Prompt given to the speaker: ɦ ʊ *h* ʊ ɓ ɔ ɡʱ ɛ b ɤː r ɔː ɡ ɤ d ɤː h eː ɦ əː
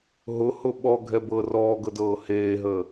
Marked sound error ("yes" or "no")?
no